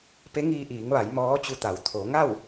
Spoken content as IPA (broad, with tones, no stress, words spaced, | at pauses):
pe˧˥ŋiː˧ʔiː˩˧ŋʋa˩˧j mɔː˧˥t͡ɕu˧t̪a˩˧w t̪ʰo˩˧ŋa˥˨w